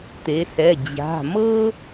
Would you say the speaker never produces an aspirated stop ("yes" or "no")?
yes